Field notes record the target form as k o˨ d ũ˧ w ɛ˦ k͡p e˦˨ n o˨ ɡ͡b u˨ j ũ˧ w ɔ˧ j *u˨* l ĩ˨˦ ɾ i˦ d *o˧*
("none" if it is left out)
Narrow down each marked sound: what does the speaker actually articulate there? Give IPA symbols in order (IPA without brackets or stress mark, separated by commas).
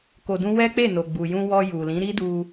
u˨, u˧